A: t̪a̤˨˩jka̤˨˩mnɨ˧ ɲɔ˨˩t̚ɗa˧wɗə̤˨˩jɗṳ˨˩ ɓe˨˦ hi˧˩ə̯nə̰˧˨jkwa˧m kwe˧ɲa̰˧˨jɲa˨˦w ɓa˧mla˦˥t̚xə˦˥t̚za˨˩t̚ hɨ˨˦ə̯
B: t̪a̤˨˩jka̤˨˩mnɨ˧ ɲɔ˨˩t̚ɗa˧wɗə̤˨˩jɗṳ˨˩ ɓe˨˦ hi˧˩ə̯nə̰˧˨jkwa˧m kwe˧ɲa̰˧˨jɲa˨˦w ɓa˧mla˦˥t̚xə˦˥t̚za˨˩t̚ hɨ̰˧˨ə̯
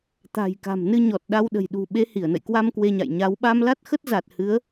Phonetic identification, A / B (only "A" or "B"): A